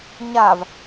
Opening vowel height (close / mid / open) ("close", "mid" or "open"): open